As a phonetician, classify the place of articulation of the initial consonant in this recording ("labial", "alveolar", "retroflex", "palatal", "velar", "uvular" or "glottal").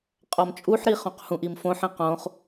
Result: uvular